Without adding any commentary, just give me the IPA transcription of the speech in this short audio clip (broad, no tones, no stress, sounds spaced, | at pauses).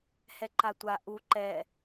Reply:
h ɛ ǃ a tʷ a ʔ u ǃ ɛ